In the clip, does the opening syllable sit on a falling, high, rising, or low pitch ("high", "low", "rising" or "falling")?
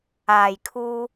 low